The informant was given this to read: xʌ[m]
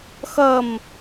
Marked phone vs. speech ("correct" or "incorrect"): correct